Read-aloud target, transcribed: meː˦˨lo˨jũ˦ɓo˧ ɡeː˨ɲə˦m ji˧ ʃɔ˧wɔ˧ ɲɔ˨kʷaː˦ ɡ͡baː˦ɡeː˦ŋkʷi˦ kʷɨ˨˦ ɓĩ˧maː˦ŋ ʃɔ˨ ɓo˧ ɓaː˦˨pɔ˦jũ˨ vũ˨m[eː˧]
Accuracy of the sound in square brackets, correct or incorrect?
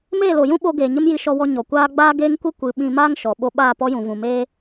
incorrect: eː˦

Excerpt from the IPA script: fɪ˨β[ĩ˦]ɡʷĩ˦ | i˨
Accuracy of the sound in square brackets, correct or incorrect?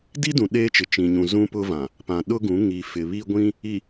incorrect: i˦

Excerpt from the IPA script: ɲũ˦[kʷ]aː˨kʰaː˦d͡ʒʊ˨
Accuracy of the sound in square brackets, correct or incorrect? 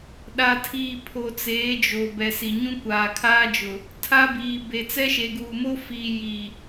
correct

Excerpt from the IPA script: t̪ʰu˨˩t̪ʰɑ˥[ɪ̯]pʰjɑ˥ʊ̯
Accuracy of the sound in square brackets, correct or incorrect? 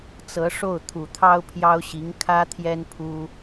incorrect: ʊ̯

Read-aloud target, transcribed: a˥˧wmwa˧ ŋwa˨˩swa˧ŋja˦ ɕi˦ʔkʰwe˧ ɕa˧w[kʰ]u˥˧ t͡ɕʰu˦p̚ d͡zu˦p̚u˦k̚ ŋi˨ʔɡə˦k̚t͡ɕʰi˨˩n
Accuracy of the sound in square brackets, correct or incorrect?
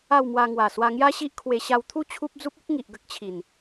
incorrect: t̪ʰ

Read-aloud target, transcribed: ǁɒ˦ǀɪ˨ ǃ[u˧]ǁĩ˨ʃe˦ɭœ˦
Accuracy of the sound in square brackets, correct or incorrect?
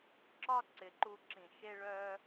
correct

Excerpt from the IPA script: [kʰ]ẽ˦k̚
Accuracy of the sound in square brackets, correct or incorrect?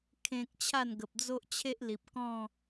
correct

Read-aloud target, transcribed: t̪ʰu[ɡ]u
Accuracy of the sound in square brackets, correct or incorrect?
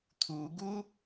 correct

